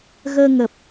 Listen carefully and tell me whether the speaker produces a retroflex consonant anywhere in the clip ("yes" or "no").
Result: no